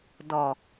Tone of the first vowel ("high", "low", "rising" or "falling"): low